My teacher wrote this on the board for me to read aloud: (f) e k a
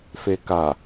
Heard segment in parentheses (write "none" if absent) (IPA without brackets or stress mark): f